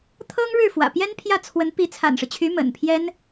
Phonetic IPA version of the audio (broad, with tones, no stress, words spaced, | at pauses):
t̪ʰɤ˥ŋɻɻ̩˥˩ fwä̰˨˩ pjɛ˥npʰjä˥˩ t͡sʰwə˧˥n pi˧˥t͡sʰa̰˨˩nʂɻ̩˦t͡ɕʰy˧˥ mə̰˨˩npʰjɛ˥n